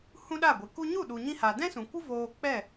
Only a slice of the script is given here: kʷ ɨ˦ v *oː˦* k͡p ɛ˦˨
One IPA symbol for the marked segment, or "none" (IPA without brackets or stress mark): oː˧